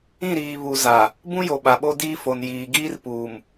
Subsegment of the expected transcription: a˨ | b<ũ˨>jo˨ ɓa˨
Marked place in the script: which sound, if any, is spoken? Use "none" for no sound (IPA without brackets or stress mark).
ũ˦